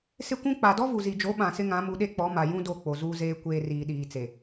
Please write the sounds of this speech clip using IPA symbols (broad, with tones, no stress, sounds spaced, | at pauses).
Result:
s ɪ˦ kʷ ũ˦ k͡p a˨ d ɔ˦ v u˨ z i˨ d͡ʒ o˨˦ ɓ ã˨ s ɪ˦ ŋ ã˨˦ m u˨ ɗ e˦ k͡p ɔ˨˦ m a˨ j ũ˦ d o˦˨ k͡p o˨ z uː˦ z eː˦ kʷ eː˨ r iː˨ ɗ iː˨ t͡s e˨